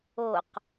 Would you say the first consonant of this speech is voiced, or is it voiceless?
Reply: voiceless